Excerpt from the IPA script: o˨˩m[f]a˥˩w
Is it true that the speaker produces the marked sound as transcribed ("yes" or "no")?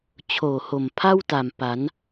no